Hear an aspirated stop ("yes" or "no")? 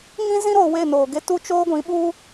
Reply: no